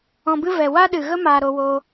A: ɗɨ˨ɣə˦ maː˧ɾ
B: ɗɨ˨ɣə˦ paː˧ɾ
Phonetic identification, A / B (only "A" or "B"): A